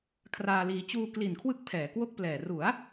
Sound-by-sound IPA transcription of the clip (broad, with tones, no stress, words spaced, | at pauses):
kʰraː˧liː˧ t͡ɕuː˧kli˨˩nkʰwɯ˦˥k̚ pʰɛː˩˦kwo˥˩k̚plɛː˨˩ ru˩˦a̯